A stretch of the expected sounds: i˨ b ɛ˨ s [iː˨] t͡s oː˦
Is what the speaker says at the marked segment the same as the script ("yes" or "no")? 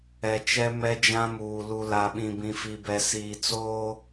yes